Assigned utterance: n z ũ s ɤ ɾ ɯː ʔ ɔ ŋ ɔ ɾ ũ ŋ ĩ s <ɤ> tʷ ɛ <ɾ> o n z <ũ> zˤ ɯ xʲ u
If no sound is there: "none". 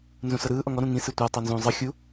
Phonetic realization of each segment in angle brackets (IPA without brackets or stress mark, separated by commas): ɯ, tˤ, ũ